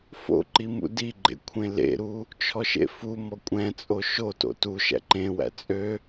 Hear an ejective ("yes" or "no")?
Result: yes